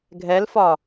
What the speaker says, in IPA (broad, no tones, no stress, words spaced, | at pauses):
ɡʱɛlfɒ